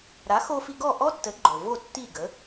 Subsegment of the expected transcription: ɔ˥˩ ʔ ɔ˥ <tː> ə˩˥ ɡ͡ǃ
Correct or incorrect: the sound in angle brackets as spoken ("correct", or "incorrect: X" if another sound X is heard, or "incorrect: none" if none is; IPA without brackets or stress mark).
incorrect: t